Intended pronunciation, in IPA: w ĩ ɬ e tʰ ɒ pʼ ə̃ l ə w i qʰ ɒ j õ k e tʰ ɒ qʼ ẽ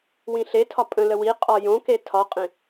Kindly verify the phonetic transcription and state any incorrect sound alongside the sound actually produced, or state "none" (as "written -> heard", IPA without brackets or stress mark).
qʰ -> qʼ